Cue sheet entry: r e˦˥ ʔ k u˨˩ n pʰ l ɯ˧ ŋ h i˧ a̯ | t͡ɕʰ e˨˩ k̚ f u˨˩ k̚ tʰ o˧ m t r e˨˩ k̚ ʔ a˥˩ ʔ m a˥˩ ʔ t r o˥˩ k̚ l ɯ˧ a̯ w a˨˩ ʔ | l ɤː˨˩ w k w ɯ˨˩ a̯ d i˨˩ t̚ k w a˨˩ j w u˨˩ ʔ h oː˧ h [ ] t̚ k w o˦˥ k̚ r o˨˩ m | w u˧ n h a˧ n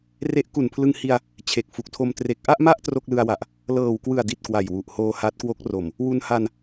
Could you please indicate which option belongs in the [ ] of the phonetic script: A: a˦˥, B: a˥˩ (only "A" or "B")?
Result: A